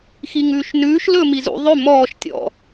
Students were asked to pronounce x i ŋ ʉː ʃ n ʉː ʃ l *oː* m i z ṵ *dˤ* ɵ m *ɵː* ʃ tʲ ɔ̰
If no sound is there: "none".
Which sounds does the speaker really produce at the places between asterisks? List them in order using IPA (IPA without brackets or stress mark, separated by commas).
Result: ɵː, ðˤ, ɔː